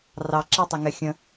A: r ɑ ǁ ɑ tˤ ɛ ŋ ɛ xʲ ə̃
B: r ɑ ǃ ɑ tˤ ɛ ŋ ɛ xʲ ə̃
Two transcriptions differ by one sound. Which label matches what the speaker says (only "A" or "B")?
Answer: A